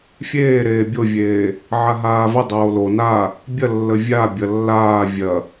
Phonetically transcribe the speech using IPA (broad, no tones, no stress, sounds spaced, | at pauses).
fʲ eː ɾ eː bʲ o vʲ eː | ʕ a ɦ aː v ə dˤ oː l o n a | bʲ ɐ lː ə vʲ a bʲ ɐ lː aː vʲ ɐ